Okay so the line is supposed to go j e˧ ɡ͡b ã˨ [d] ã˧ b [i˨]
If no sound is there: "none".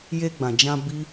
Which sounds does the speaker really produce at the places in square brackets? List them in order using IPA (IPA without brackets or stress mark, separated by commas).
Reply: d͡ʒ, i˦